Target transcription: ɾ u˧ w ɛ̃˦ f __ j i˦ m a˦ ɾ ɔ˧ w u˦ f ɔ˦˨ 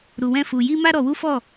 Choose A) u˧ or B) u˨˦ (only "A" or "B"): A